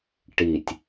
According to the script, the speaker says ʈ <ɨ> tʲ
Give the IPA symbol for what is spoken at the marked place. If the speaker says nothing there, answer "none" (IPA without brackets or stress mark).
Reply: i